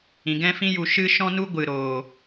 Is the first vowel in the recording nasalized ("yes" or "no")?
yes